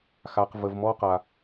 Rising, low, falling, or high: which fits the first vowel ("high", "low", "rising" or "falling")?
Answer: low